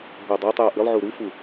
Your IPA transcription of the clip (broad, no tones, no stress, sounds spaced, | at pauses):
ɦ o dˤ a tˤ j o ʔ ɨ lˠ ʕ u ɾ u f u